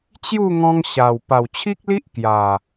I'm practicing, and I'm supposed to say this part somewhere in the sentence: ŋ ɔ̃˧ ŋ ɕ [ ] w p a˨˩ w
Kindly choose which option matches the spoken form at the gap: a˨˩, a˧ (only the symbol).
a˨˩